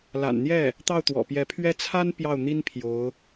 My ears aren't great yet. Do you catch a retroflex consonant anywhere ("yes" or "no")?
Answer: no